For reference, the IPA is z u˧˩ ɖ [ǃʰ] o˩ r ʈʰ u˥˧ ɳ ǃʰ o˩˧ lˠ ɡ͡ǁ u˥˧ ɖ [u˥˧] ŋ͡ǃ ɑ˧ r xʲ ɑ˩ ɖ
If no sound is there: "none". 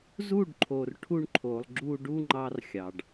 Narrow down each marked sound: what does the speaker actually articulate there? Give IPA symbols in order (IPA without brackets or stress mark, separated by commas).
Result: ǃʰ, u˥˧